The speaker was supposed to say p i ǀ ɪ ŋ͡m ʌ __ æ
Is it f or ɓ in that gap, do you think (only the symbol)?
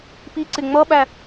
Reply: ɓ